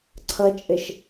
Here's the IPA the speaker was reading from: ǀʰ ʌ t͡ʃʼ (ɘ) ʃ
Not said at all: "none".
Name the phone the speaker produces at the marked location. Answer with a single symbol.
ɘ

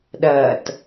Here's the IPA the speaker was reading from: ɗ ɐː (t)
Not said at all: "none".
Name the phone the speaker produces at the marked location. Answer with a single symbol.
t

